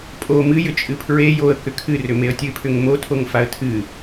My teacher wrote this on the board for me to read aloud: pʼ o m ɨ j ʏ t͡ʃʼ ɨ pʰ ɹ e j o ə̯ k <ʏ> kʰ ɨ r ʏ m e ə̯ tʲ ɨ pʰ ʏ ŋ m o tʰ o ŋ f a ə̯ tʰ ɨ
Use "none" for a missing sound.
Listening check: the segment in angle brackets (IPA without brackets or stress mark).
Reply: ʏ